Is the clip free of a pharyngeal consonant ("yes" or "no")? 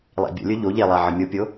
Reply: no